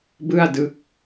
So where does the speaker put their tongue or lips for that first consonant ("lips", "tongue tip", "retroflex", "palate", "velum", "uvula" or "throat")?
lips